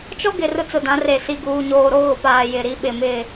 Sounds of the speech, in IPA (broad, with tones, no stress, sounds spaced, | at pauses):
t͡ʃ ɔ˦ ɡ ɪ˨ r ʊ˦ t͡s ʊ˨ d ã˨˦ r e˨ s i˨ ɡ uː˨ ɲ oː˨ ɾ o˦ ɣ ʊ˨ p aː˨ j ɪ˨ ɾ i˦ ɓ ɪ˨ m ɪ˦˨